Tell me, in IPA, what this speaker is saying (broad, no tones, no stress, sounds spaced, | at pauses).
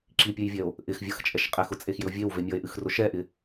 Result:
ǁ i pʲ ɨ j vʲ ɛ o̯ | ʔ ɪ x vʲ ʌ x t͡ʃʼ ɛ ʃ qʼ e x ʊ t͡sʼ e x j ɪ o̯ vʲ e w v e mʲ ʌ e̯ ʔ ɨ x r ʊ ʃ ɛ ʔ ɪ